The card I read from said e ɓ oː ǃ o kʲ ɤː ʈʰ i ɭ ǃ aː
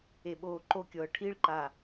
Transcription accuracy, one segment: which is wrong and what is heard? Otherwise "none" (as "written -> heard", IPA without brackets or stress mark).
none